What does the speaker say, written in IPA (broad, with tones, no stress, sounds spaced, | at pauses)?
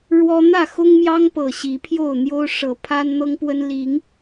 ɻ w ɔ˦ n̪ ä˥˨ x ʊ˦ ŋ m j ɑ˦ ŋ p ɤ˨˩ ɕ i˨˦ pʰ j o˥˨ ʊ̯ n̪ j o˦ ʊ̯ ʂ ɤ˨˦ pʰ a˦ n n̪ ɤ˦ ŋ p w ə˦ n l i˨˦ ŋ